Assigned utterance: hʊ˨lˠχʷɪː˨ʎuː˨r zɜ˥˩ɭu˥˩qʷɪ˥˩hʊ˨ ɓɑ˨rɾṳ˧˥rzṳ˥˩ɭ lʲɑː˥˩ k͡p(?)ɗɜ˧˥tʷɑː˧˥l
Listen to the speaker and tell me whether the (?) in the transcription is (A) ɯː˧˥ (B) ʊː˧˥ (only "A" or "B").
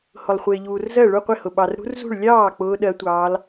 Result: B